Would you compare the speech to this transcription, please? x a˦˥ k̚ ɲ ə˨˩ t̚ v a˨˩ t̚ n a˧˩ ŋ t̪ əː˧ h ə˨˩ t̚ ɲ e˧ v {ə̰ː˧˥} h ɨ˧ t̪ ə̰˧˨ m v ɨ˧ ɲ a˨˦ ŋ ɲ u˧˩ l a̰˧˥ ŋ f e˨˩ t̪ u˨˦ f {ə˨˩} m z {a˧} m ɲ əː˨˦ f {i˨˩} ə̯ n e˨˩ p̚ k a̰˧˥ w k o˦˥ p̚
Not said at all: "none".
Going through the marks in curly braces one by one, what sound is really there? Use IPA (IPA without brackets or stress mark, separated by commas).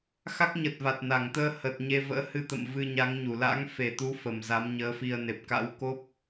ə̰ː˧˥, ə˨˩, a˨˦, i˧